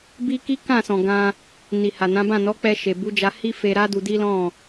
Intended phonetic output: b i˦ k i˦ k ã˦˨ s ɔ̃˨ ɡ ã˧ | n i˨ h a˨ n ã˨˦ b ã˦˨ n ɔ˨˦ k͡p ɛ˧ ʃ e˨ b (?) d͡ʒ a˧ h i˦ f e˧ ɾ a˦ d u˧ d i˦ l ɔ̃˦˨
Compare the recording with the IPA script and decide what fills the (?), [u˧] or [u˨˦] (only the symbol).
u˨˦